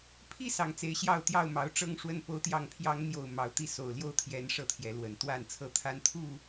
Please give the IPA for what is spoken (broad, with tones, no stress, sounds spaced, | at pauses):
pʰ i˥˨ s ɑ˨˩ ŋ t͡s e˨˦ ɪ̯ ɕ j ɑ˥˨ ʊ̯ t̪ j ɑ˥˨ ʊ̯ m ɑ˨˦ ʊ̯ ʈ͡ʂ ɤ˦ ŋ ʂ w ə˥˨ n p o˨˦ ʊ̯ t̪ j ɑ˨˩ ŋ pʰ j ɑ˨˦ ŋ n̪ j o˥˨ ʊ̯ m ɑ˨˦ ʊ̯ t̪ i˥˨ s o˨˩ ʊ̯ l j o˥˨ ʊ̯ t̪ʰ j ɛ˨˦ n ʂ ɤ˥˨ t̪ʰ j ɛ˨˦ l w ə˨˩ n t̪ w a˥˨ n t͡sʰ ɤ˥˨ t̪ʰ a˦ n t̪ʰ u˥˨